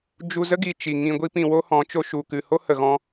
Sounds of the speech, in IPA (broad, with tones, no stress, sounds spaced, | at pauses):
d͡ʒ u˧ z ə˦ ɡ i˨ t͡ʃ i˨ ŋ ĩ˧ ɡʷ i˦ p ĩ˧ w o˦ h ɔ̃˨˦ t͡ʃ o˧ ʃ u˨ k ɨ˨ h o˦ h ə˨ ɣ ɔ̃˧